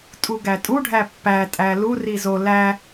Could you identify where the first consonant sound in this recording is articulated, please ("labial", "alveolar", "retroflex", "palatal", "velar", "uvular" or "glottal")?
alveolar